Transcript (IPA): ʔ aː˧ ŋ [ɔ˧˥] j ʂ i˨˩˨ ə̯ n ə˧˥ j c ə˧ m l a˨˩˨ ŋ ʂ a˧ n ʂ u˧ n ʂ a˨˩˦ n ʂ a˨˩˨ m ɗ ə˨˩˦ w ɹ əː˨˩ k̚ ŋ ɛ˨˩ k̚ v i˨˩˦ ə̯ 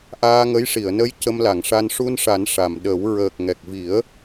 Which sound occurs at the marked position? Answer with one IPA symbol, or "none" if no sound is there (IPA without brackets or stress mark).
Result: ə˧˥